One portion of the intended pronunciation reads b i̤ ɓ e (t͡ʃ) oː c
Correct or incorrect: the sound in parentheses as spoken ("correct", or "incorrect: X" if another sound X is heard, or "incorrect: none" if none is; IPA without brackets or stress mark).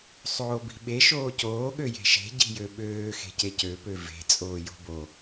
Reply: incorrect: ʃ